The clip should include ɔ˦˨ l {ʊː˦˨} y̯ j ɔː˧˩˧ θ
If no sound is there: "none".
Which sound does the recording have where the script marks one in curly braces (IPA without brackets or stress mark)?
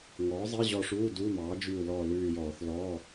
ʉː˦˨